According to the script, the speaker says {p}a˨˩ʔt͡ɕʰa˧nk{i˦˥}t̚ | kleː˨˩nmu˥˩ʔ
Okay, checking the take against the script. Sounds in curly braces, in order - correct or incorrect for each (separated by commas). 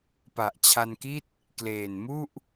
correct, incorrect